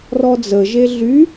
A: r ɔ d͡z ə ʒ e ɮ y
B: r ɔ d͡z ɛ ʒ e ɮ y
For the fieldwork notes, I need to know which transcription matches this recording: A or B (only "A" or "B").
A